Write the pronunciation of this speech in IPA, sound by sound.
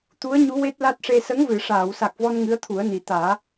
t̪ u˧˥ ə̯ ɲ u˧˥ w e˦˥ t̚ l a˦˥ t̚ ʂ e˧ s ə˧˥ ŋ v ɨ˨˩˨ ʂ aː˨˩˨ w s a˨˩ k̚ v ɔ˧ n ŋ ɨ˧˥ ə̯ t̪ʰ u˨˩˦ ə̯ n i˨˩ t̪ aː˨˩˦

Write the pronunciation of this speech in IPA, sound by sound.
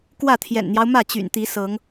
k w ä˥˨ t̪ʰ j ɛ̰˨˩ n n̪ j ɑ˦ ʊ̯ m ä˥˨ t͡ɕ y̰˨˩ n t̪ i˨˦ s ɤ˨˦ ŋ

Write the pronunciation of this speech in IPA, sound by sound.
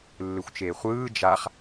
lː ɯ xʷ t͡ʃ eː χʷ ɯː d͡ʒ a χ

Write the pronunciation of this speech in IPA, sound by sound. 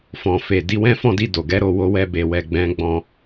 f ɔ̃˨ f e˨ d i˨˦ w ɛ̃˦ f ɔ̃˦˨ d i˧ d o˨ ɡ ɛ˨˦ ɾ o˦˨ w o˧ w ɛ˧ b e˨ w ɛ˨ ɡ͡b ɛ̃˨˦ ɡ͡b ɔ̃˧

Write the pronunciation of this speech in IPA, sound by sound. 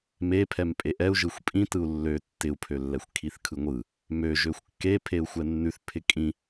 m e pʰ ɛ m pʼ e ʔ ɛ u̯ ʒ ɯ xʷ pʼ ĩ t ɯ u̯ lː ø tː ɪ u̯ pʰ ø lː ɛ xʷ kʰ i θ kʰ ɯ ŋʷ ɯ | m ø ʒ ø xʷ kː e pʰ e u̯ xʷ ɛ nː ʉ θ pʰ ɪ kʼ ĩ

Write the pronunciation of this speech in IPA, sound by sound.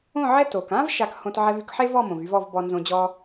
õ˥˨ ʕ ɛ˥ t o˩ k ã˥ v ʃ a˧ k h õ˧ t ʕ ɛ˧ v y˧ k ħ e˥ v ɔ˥˨ m õ˩ v y˧ v ɔ˥˨ v b ɔ˧ n z õ˧ d͡ʑ ɔ˥

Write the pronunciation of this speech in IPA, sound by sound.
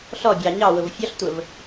ɬ ɔ bʲ ɑ ɲ ɑ w ʊ v fʲ ɔ ɬ tʷ ə v

